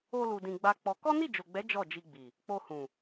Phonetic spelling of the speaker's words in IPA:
o˧ l u˧ d ĩ˧ ɡ͡b a˦ k͡p ɔ˧ k ɔ˦ n i˦˨ d͡ʒ o˨ ɡ͡b ɛ˨˦ d͡ʒ ɔ˦˨ d͡ʒ i˧ ɡ͡b i˨ | k͡p o˧ h ũ˨

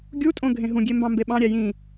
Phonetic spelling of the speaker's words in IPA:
ɡʲ u tʼ õ ɡʱ ẽ ɦ ũ ɡʲ e m b ɑ̃ m b e ɓ ɑ̃ ɾʲ æ j ĩ

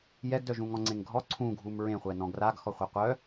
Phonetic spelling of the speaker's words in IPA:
j ɛ ɡ d œ ʒ ũ ŋ ɔ̃ ŋ͡ǀ ẽ ŋ ɡʱ ɔ ǀʰ ũ ɡʱ u m ɹ ẽ χʷ ɛ n ɔ̃ ɡ r a ɡ x ɔ χʷ e qʷ œ

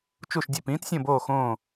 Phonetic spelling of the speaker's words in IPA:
t͡ʃ u˦˨ ʃ dʲ e˦˨ p ĩː˦˥ t sʲ õ˦˨ b oː˦˨ x õː˦˨

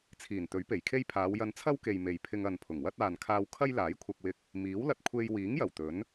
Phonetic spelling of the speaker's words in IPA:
t͡sʰ iː˨˩ n t̪ ɵ˨˥ ɥ p e˨˩ j kʰ e˥ j pʰ aː˨˧ w j ɐ˧ n t͡sʰ ɐ˥ w k e˨ j m e˨ j pʰ ɪ˧ ŋ ɐ˨ n pʰ ʊ˨˩ ŋ w ɐ˥ t̚ aː˨ n kʰ aː˧ w kʰ ɐ˥ j l aː˨˥ j kʷʰ ɐ˧ k̚ w ɪ˧ k̚ | m iː˨˥ w l ɐ˧ t̚ kʷʰ e˧ j w iː˨˥ ŋ j ɐ˨˩ w t̪ ɵ˨˥ n

